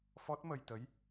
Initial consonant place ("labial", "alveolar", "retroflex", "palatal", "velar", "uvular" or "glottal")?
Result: labial